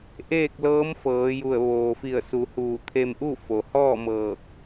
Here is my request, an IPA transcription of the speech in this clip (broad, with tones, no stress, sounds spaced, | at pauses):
ʔ eː˥˨ k̚ l ɤː˧˥ m f ɤː˩˧ j u˧˩ ə̯ ʋ oː˩ f i˧˩ ə̯ s u˩˧ h uː˧˩ t̪ʰ e˧ m ʔ u˥˨ f o˩ h ɔː˥˨ m ɤː˧˩ k̚